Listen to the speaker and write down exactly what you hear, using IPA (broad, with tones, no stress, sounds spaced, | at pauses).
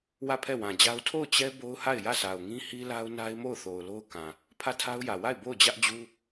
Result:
w ä˦˨ pʰ ɛ˦˨ w ã˨ d͡ʑ a˦ ʊ̯ tʰ o˦˨ ʊ̯ t͡ɕ ɛ˦ b o˦ ʊ̯ h a˦˨ ɪ̯ j ä˦˨ sʰ a˨ ʊ̯ ŋ ĩ˦ h i˦ l a˦ ʊ̯ n a˦ ɪ̯ m o˦˨ ʊ̯ θ o˨ ʊ̯ l o˦ ʊ̯ k ã˨ | pʰ ä˦˨ tʰ a˦ ʊ̯ j ä˨ w a˦˨ ɪ̯ b o˦˨ ʊ̯ d͡ʑ ä˦ ʔ d͡ʑ u˦